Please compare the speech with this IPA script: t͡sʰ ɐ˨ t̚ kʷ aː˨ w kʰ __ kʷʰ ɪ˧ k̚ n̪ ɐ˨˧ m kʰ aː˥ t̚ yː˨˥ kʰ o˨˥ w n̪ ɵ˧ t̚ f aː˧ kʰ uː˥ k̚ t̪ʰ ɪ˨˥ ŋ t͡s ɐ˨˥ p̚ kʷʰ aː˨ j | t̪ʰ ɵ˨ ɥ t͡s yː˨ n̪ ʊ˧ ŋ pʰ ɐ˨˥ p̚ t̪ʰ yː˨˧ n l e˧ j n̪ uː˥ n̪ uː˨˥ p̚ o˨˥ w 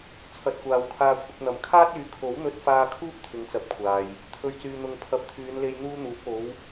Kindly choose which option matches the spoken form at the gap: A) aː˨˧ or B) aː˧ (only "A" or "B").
B